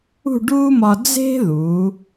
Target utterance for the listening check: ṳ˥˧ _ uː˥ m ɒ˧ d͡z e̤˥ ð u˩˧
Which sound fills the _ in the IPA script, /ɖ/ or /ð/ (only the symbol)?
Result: ɖ